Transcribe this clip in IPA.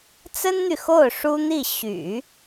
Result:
t͡sə˥nn̪y˨ xo˥˩ʊ̯ ʂu˥n̪i˥˩ ɕy̰˨˩˦

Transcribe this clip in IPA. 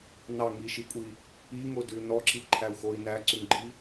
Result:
nɑŋiʃikʷʼi | iŋodʉ nɔǁiǃʰæu̯xoi̯ næǀʉŋɡ͡ǃi

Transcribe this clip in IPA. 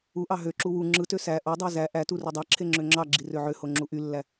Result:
uʔɑ ɦøǁu wu ŋ͡ǁɯtø sæ ʔodˤæ zæ ʔætu rydˤɑǁʰe ŋ͡ǁøŋ͡ǁɑɡ͡ǁi røʕøho ŋ͡ǁuʔylːæ

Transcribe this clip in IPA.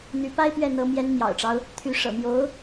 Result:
n̪y˧˥pa˥ɪ̯pɥɛ˥˩n̪ɤ˧˥ mjɛ˧˥nmjɑ̰˨˩ʊ̯ʈ͡ʂɑ˦ʊ̯ | t̪ʰy˧˥ ʂɤ̰˨˩mjo˧˥ʊ̯

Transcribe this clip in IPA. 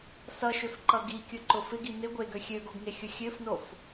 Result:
sʌʃøfǃʌ ɡikʲʊǃʊ fɪɡi nɪ ɡʷeɡø xʲøɡoɡŋexʲʊ xʲøfnof

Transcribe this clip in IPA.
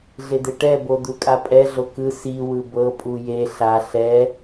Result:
ɮed̪eʈɛ bod̪ukʼapʼɛ ɮokɯ si wɯbɤ pʼuje ɬa ɬɛ

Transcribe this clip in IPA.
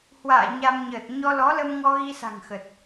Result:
hwa̰ː˧˨ ɲa˧mɲəː˨˩t̚ ɲɔ˧lɔ˨˦lə˧mŋɔ˧ ɣi˧sa̤˨˩ŋxə˨˩t̚

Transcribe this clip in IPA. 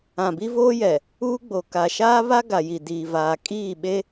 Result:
ã˨bi˦voː˦ jɛ˨ | uː˦ɡ͡bo˨ ka˨ ʃaː˦βa˦ ɡa˨ji˨ diː˨vaː˨ kʼiː˦˨ɓe˦

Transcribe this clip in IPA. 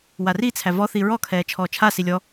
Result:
warit͡sʰæ vɔθi ɹɔkʰɛː t͡ʃʰɔːt͡ʃʰasi lʲɔ

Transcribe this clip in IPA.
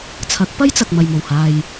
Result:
t͡sʰɐ˨˥k̚pɐ˥jt͡sɐ˨k̚ mɐ˨jmo˨˩whaː˨j

